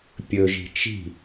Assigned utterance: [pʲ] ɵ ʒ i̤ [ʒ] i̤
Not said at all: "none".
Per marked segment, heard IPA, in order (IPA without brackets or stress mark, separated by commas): pʲ, t͡ʃ